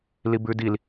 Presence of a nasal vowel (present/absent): absent